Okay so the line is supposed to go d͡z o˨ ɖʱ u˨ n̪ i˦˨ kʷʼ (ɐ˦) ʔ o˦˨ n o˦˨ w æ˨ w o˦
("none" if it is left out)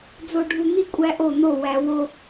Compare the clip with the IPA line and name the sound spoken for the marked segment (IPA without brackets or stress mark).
æ˦